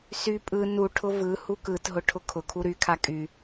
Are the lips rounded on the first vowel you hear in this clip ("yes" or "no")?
yes